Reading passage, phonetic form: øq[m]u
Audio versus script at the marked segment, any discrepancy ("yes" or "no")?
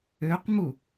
no